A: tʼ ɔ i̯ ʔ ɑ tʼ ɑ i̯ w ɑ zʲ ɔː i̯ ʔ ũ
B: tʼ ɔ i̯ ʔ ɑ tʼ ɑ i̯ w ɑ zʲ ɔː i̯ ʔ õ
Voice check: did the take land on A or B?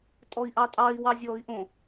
B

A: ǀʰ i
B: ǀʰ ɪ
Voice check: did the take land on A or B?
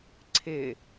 B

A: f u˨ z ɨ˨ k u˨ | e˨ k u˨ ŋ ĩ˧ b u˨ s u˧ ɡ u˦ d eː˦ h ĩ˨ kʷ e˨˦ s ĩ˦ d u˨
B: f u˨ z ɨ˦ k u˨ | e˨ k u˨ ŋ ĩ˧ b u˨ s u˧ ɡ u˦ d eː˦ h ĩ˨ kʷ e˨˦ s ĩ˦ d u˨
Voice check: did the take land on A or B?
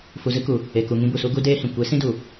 B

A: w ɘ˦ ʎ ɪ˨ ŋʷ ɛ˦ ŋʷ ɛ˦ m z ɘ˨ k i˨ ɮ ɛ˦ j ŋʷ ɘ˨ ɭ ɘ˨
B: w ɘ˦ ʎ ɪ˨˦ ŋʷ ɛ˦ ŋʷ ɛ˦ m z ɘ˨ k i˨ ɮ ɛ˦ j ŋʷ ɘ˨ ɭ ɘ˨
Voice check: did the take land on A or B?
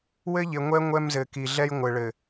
A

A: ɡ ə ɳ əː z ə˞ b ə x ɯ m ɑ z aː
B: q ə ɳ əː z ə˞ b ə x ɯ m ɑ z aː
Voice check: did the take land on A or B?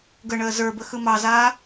A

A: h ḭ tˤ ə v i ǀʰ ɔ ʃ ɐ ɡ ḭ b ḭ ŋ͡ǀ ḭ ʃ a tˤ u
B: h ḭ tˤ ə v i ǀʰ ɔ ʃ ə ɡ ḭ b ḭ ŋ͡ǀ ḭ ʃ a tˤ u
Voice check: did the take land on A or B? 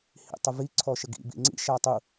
B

